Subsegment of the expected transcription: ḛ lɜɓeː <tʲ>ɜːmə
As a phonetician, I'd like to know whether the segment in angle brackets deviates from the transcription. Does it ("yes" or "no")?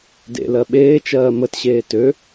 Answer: yes